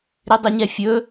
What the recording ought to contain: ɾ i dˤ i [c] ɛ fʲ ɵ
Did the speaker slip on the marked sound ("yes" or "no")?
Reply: yes